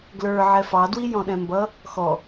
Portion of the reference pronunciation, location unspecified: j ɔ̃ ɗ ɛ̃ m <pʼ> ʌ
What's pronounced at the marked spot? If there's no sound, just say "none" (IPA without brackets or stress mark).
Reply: b